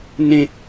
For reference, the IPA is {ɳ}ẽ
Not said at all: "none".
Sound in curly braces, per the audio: n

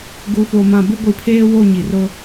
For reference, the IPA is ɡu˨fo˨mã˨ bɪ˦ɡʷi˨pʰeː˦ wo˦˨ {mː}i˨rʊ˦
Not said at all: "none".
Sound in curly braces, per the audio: ɲ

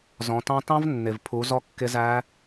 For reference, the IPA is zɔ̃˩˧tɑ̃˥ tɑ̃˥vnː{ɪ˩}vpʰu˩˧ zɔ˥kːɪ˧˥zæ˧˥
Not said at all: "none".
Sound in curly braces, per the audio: ɪ˩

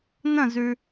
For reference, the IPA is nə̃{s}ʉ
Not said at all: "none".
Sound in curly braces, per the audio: z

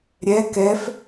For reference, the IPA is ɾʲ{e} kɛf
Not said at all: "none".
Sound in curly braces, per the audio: ɛ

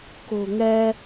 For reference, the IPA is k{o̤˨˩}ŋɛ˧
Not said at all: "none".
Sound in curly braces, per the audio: o̤˨˩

